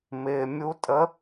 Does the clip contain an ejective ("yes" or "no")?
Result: yes